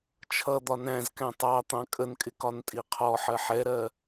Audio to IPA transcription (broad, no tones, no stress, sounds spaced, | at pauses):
t͡ʃʰ ʌ d̪ ɒ n æ̃ z k æ̃ tˤ ɑ t̪ ɑ̃ kʼ ə n kʼ ɪ k ɒ n tʼ i qʰ ɔ ħ ɜ ħ ɛ ɾ ɜ